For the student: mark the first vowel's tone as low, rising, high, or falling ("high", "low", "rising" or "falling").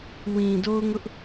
low